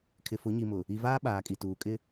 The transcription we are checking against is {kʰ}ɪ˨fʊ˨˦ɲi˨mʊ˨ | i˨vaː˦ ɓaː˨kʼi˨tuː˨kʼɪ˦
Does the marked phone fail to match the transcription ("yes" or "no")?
no